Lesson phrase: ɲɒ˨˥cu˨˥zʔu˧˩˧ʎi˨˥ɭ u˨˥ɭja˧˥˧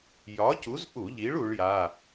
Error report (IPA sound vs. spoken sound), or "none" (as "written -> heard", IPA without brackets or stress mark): ɲ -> j